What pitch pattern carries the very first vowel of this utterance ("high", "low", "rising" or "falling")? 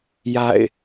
falling